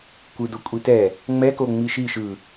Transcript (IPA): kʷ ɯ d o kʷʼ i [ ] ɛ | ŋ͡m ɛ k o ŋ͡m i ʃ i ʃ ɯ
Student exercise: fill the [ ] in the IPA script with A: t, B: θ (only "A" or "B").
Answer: A